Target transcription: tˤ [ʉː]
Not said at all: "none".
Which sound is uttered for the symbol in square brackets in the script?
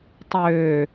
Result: øː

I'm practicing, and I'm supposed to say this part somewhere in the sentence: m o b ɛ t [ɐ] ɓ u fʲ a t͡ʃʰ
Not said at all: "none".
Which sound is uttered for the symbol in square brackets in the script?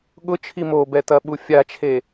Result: ɐ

